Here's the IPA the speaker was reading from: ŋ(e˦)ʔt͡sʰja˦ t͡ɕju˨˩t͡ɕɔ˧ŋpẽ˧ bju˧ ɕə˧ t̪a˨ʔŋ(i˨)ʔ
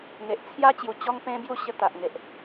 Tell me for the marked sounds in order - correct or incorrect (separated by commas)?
incorrect, incorrect